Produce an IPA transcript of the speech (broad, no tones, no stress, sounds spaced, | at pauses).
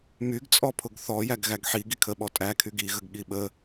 m y ɡ t͡sʼ ɔ pʰ ʊ ɡ θ ɔ j æ ɡ ɣ æ ɡ ħ i ɡ i kʰ ə ɓ ɔ tʼ æ kʰ y ɡ i ɣ ə ɡ ɠ i ɓ ə